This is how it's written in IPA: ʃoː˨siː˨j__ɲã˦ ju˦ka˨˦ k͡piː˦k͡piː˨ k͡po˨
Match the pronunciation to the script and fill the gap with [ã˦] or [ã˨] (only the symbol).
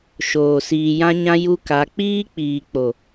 ã˦